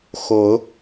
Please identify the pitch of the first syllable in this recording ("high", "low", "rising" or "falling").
rising